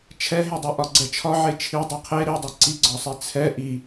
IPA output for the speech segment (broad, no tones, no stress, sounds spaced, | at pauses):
t͡ʃʰ ɛ ɦ e dˤ i ʔ ɒ ɡ͡ǀ ɛ t͡ʃʰ ɒ ʕ e t͡ʃʰ i dˤ i qʰ e ɾ i dˤ ɛ ǀ i ɡ͡ǀ ɒ sˤ i t͡sʰ ɛ ʔ i